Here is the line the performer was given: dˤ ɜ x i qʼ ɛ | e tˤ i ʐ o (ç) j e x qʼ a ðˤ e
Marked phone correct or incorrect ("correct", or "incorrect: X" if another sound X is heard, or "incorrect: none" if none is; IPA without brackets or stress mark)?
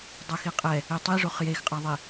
incorrect: χ